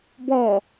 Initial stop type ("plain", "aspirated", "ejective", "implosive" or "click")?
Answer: plain